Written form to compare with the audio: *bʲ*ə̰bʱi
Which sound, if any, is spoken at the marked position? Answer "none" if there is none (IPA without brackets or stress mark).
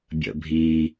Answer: bʲ